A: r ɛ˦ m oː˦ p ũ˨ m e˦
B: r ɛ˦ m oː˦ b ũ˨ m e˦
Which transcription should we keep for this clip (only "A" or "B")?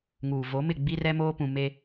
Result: A